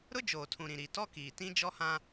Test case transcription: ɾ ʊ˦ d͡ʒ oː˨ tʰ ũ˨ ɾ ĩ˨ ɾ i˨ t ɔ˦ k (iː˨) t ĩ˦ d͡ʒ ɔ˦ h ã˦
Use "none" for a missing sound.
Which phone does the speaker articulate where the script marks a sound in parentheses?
iː˨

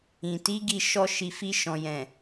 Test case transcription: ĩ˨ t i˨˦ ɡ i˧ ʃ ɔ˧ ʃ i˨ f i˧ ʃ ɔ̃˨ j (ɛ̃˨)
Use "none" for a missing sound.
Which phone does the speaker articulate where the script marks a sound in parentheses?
ɛ̃˨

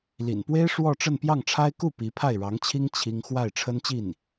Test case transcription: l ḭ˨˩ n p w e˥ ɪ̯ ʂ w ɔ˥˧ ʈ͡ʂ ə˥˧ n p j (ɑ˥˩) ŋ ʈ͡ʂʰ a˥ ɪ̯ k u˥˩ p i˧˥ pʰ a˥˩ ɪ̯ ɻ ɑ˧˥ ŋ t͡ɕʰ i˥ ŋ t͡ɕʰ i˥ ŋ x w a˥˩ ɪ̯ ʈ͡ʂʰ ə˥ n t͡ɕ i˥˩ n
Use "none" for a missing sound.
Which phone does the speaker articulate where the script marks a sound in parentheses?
ɑ˥˩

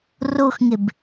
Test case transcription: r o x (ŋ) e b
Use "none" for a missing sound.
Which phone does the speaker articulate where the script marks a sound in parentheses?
ŋ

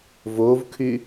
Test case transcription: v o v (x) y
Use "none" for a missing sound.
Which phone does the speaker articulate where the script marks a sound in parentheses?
kʰ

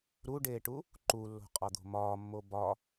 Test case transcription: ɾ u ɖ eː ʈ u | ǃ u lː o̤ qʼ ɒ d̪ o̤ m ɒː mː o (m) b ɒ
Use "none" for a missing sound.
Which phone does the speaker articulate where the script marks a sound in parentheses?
none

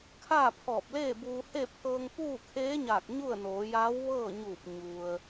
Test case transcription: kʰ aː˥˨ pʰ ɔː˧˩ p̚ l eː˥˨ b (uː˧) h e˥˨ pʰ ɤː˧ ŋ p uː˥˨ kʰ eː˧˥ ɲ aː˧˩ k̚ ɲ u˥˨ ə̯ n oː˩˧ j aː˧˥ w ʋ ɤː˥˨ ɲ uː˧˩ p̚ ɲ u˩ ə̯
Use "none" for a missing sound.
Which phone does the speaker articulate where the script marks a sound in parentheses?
uː˧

